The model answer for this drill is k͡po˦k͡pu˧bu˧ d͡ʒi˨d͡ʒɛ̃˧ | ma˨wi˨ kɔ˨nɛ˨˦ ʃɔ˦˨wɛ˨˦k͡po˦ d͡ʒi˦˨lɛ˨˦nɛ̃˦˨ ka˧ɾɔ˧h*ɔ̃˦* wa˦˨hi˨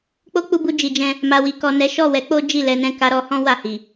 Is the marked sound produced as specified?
yes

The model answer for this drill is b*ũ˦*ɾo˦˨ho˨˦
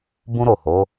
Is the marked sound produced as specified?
yes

